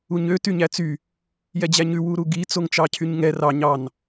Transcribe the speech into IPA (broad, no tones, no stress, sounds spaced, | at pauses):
u ɲ ø t y ɲ æ t͡s y | j ɛ d͡ʑ æ ɲ ʉ w u ɾ u ɡ i t͡s o ŋ t͡ʃ ɑ cʰ y ɲ ŋ ɛ r ɑ ɲ ɑ n